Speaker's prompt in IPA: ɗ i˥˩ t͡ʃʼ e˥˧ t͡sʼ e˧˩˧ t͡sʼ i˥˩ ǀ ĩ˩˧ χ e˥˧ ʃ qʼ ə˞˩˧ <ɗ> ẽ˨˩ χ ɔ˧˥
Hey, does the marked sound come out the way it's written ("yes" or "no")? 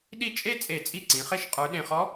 yes